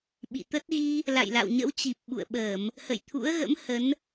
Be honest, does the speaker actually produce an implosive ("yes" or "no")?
yes